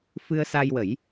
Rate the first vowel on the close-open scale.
close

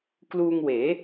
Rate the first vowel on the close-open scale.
close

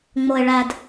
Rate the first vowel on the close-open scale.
mid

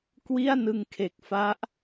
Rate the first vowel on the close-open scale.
close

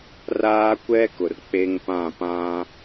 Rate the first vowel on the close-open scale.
open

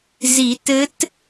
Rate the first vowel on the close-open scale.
close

